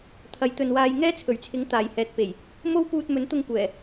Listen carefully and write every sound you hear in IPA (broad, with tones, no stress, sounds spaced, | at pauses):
t̪ʰ ɐ˨˥ j t̪ ɵ˨ n w aː˧ j ŋ ɛː˥ t͡sʰ ɵ˨˩ ɥ t͡sʰ ɪ˨˥ ŋ t̪ aː˨˩ j h ɛː˨ t̚ p e˨˩ j | m o˥ w p uː˧ t̚ m ɵ˨˥ n t̪ ʊ˧ ŋ kʷ ɛː˨˩